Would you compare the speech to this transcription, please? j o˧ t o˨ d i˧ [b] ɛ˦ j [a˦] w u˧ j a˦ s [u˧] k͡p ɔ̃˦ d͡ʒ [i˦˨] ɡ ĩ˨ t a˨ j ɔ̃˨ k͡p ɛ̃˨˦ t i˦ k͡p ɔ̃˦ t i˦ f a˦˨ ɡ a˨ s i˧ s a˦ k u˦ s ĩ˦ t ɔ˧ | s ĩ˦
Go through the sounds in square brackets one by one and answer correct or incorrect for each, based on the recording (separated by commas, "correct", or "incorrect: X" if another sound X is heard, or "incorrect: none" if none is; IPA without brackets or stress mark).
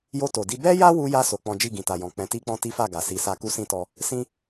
correct, correct, incorrect: o˧, correct